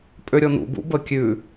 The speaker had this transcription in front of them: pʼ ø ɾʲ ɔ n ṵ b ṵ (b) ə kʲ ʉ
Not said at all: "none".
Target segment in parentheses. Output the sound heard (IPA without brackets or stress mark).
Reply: b